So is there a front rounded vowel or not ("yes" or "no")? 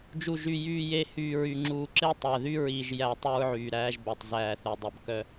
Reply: yes